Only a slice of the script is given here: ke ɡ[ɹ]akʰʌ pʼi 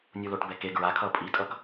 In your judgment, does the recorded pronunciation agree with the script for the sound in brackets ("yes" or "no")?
yes